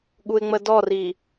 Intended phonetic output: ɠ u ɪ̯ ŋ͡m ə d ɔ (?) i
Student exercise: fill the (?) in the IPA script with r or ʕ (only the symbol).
r